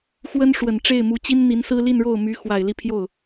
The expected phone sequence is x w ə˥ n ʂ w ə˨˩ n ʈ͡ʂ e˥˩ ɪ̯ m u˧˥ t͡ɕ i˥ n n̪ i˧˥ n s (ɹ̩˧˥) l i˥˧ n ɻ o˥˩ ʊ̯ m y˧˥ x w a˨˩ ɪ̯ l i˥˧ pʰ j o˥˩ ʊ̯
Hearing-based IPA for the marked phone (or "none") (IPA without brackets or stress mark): ɹ̩˥